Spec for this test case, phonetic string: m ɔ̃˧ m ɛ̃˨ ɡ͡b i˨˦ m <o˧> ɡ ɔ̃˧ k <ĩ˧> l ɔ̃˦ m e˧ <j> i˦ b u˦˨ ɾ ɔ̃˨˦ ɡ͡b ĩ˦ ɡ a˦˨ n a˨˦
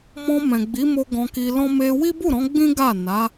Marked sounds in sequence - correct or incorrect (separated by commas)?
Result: correct, incorrect, incorrect